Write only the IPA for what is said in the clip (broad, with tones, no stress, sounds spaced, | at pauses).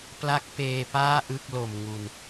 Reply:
p l a˦˥ k̚ p eː˧ p aː˥˩ ʔ ɯ˥˩ k̚ l o˨˩ m ŋ u˨˩ n